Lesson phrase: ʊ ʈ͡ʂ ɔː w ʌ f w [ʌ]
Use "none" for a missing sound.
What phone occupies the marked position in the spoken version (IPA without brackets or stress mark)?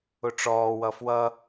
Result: ʌ